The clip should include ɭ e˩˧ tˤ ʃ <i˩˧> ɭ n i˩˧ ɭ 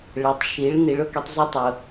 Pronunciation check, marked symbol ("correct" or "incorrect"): correct